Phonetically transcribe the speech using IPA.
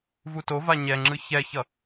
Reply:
vutova ɲɛŋ͡ǁɯ çɛçʌ

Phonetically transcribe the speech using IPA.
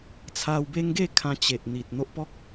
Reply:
t͡sʰa˧wbe˦ŋ ɡe˥˧kʰã˧ t͡ɕe˨ʔ n̪i˨t̚n̪o˦ʔpɔ˦k̚

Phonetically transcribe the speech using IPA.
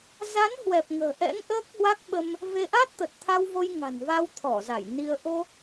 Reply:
za˨˦n hwɛ˨˩p̚ŋə̤ː˨˩ʔɛ̰˧˥ŋ ʔəː˦˥k̚hwa˦˥k̚ ɓə˧m | ve˧ ʔa˦˥t̚t̪ə˨˩t̚t̪ʰa˧wvo˧j ŋa̤˨˩nva˧wt̪ʰɔ˧˩za˧˩j ni˧ə̯ ʔo˧

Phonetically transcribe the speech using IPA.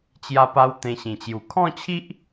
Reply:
t͡ɕja˥˧pa˦w t̪ẽ˧ɕĩ˨˩t͡ɕju˨˩ kʰɔ̃˥˧t͡ɕʰi˦ʔ

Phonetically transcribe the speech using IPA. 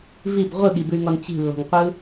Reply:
vib ʁʷɯɠibʉy̯ŋɔn t͡ɕi̤lːɔ̤ŋqʷɯ

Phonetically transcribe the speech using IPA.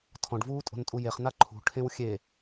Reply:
tʰɔ̃ɖvuːtʼo̤ntʼu jeχna ǃʰṳʈʰẽw xʲe

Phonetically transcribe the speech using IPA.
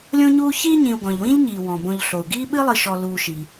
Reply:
lʲõ˦ɲuː˦çiː˥ɲĩ˨u̯ ɡɔ̃˩ʎwĩ˦ʎɲiː˩ wɔ̃˩bõ˨ʎ ɬo˩u̯ɡiː˥ ɓɨ˥lˠɨ˨ʃɔ˨ luː˨ʃi˩

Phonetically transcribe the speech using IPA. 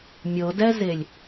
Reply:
mʲɤdɛzelʲ

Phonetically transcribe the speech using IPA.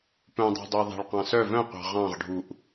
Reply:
pœ̃dˤɑ̤dˤuɪ̯ ðˤæ̤ɭqɑ̃sœ vœ̃qʷɑ̤ ʁɑ̃ʁɖʱuʔ

